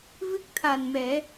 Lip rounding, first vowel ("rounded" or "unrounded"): unrounded